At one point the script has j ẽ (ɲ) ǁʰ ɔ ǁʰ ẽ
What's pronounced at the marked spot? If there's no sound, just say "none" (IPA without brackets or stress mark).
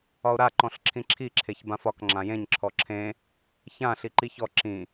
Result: ɲ